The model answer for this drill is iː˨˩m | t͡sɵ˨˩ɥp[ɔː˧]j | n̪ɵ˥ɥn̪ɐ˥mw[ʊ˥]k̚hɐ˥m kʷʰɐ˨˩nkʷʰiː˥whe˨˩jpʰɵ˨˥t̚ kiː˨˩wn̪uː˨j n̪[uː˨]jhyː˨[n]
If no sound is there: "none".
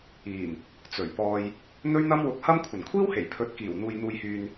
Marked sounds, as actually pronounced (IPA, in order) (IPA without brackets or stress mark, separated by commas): ɔː˧, ʊ˧, uː˨, n